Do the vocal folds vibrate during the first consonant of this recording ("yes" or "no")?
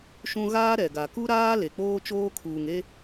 no